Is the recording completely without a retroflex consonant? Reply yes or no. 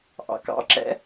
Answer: yes